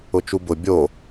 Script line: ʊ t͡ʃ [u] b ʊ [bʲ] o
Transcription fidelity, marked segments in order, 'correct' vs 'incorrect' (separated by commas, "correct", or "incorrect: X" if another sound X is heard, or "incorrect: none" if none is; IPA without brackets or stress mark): correct, correct